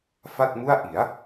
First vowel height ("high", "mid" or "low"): low